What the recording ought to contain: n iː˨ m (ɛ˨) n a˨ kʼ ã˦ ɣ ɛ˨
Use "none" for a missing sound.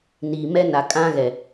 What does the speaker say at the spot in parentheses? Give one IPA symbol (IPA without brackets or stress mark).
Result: ɛ˦